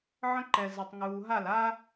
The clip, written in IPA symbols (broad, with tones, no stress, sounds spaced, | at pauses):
ʕ ə̃˦ ǃ ɛ˨ z ɛ˨ tˤ ŋ uː˨ ɦ a˦˨ l a˦